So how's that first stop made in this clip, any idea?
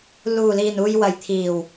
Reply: aspirated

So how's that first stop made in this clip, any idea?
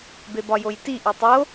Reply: plain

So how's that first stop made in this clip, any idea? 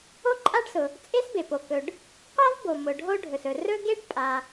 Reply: click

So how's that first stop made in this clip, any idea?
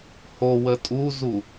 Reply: ejective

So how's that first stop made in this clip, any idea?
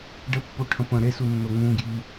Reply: plain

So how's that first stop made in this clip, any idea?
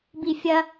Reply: plain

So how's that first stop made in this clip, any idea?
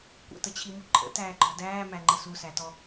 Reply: plain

